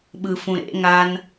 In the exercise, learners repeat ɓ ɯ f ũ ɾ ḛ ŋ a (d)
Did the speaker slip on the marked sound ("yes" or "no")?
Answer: yes